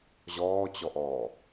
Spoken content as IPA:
ʑ ɔː t͡ɕ ɔ ʔ ɔː

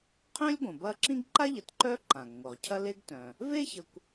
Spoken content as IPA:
qʰ œ̃˥ lʲ ɡʷ ə̃˩ b ɐ˦ ǁ ĩ˥ ɡ ǃ a˥ ʎ ə˨ t ǃ œ˥ ǃ ã˩ ɡ ŋʷ œ˩ ʁ cʰ ɐ˦ l e˥ ɡ t œ̃˩ | v e˥ ç ə˨ kʷ

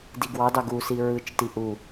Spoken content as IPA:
d i ɡ w ɑ d ɑ ɡ u s i ɹ ɯ t͡ʃ t i ʔ u

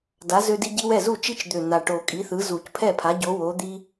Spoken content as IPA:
d a˨˥ z ø˦ d i˦ ɟ i˦ w ɛ˥˩ z u˥˩ t͡ʃ i˦ t͡ʃ d̪ ø˨˩ n̪ a˨˩ ʈ o˨˩ kʼ i˨˥ θ ɯ˨˥ z u˨˩˦ c pʰ ɛ˥˩ pʰ a˨˥ ɟ o˨˥ w o˨˥ d̪ i˦

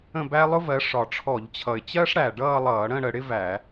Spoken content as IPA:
ə̃˥˧ b æ˥ lˠ ʊ˥ v ɜ˨˦ ʂ ɒ˨˩ ʈ͡ʂʰ ɔ˧˩˧ ʎ t͡ɕʰ ʌ˨˩ ɪ̯ t͡ɕ ɜ˥ ʂ ɽ æ˨˩ ɖ ʌː˥˧ lˠ ʌː˧˩˧ ɽ ə̃˥˧ ɽ ə˧˩˧ ɽ ɪ˥ v æ˧˩˧

